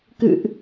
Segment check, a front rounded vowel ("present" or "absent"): absent